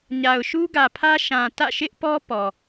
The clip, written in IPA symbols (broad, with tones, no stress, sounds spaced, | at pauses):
ɲ a˨ ʊ̯ ʃ u˦ ɡ ä˨ pʰ ä˦ ʃ ã˨ t ä̰˦˨ ʃ ɪ˦ ʔ p ɔ˦ p ɔ˨